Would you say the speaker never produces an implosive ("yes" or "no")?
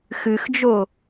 yes